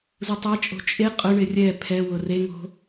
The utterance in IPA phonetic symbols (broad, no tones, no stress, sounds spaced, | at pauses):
z u tˤ a t͡ʃʼ o̤ t͡ʃʼ e qʼ ʊ ɳ ɪ rʲ ɛ pʰ ɛ w ʊ r e ŋ o̤